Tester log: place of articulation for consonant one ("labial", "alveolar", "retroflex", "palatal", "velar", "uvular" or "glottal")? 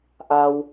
glottal